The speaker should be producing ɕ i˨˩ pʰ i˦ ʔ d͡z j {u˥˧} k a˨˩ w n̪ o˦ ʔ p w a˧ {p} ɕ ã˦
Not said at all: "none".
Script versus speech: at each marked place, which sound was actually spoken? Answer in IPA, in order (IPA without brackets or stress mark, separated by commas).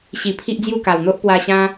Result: u˥˧, none